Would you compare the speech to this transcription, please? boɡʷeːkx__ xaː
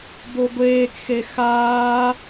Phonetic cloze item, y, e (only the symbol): e